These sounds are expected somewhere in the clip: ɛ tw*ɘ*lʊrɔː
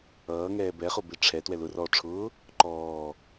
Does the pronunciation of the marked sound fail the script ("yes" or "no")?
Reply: yes